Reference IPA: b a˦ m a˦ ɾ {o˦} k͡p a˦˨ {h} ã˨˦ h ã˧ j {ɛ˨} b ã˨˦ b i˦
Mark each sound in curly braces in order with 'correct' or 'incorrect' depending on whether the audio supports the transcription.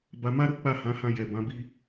correct, correct, correct

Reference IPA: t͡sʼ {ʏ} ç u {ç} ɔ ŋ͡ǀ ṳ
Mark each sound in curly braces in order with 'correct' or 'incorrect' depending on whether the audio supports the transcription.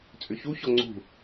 correct, correct

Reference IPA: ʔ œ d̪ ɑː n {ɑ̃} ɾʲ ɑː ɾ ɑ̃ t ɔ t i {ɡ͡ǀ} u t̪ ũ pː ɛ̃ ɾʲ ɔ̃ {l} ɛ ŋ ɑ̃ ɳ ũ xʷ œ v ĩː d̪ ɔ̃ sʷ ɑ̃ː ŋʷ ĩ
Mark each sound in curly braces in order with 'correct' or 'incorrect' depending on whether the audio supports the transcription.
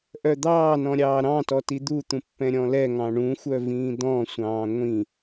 incorrect: ɔ̃, incorrect: d̪, correct

